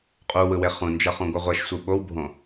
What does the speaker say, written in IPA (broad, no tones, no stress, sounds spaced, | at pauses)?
qʼ u w ɯ w e χ ũ n d͡ʒ ʌ χ ũ ɡʷ ʌ ʁʷ ɛ ʃ sʷ ɯ ɓ o w bʱ õ